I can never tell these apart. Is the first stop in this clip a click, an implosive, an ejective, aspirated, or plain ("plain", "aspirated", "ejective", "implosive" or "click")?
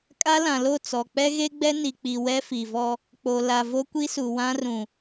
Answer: ejective